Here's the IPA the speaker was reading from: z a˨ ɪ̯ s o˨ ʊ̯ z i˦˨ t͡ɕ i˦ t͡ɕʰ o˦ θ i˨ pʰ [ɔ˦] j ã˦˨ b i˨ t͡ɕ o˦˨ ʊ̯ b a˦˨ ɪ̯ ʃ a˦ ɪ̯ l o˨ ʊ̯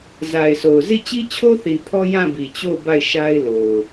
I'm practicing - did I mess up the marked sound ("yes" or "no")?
no